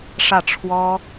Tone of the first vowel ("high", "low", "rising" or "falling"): falling